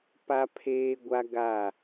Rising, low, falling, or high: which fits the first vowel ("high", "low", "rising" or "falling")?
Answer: high